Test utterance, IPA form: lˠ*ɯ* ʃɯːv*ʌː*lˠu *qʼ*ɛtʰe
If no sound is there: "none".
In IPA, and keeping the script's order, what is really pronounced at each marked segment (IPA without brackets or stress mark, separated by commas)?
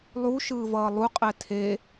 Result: u, ʌː, qʼ